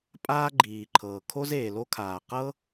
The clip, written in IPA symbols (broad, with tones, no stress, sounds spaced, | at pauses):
pʼ aː˥ ɡ͡ǃ iː˩ ǃʰ ɤː˩ kʰ o˥ z eː˩ l o˥ kʰ aː˩ q ɤ˥